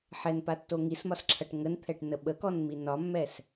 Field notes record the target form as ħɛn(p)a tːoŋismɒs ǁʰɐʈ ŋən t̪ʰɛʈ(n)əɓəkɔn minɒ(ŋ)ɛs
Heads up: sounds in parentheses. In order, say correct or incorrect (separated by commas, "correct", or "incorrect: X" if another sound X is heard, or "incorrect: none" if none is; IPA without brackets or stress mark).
correct, correct, incorrect: mː